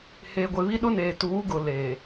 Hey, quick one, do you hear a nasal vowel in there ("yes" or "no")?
no